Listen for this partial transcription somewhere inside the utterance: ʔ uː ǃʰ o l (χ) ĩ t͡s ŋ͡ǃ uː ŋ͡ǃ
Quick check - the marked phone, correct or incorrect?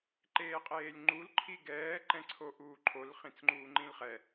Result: correct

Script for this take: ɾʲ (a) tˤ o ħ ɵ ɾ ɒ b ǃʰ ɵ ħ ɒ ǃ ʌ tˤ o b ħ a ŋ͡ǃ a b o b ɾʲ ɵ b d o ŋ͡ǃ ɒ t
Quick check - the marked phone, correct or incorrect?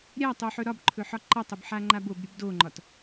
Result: correct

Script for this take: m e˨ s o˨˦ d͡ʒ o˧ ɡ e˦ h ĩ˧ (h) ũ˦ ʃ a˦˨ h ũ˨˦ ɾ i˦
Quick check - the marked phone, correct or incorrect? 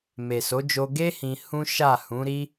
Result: correct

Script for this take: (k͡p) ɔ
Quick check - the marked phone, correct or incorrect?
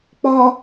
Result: correct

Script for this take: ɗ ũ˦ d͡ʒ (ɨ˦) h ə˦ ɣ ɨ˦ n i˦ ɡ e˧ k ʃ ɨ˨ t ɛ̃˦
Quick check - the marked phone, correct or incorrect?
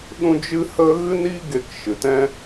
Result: correct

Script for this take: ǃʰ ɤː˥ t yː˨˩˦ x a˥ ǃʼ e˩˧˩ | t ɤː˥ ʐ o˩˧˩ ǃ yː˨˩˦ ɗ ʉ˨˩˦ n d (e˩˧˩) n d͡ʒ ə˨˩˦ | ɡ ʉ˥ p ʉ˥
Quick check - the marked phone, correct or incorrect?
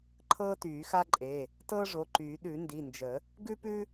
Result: incorrect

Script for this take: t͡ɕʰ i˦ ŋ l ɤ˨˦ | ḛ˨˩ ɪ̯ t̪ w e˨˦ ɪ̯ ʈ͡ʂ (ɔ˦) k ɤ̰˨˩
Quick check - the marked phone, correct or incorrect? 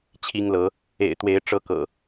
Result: incorrect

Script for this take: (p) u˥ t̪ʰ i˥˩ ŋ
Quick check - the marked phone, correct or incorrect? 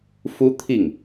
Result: incorrect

